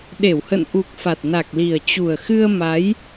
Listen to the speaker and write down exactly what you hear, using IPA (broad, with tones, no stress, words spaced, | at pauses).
ɗe˧˩whə̰˧˨nʔu˨˩k̚ fa˨˩t̚na˨˩k̚li˨˩ə̯ t͡ɕu˨˩ə̯xɨ˧ə̯ ma˨˦j